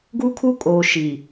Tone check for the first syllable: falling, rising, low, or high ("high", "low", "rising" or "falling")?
high